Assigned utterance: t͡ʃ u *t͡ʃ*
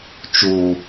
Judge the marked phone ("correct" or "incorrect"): incorrect